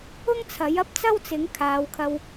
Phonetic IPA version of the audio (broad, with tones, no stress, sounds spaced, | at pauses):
ʊ˥ ŋ t͡sʰ ɐ˨˥ j ɐ˥ p̚ t͡s ɐ˥ w t͡s ɪ˨˥ ŋ kʰ aː˨˧ w kʰ ɐ˧ w